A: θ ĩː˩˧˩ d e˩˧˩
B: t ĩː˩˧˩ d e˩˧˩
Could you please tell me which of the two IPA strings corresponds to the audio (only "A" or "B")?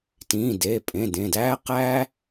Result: B